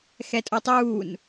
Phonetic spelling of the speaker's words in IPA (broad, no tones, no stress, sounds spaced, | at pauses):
x ɛ tʼ o tˤ uː n